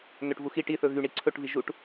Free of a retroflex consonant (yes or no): no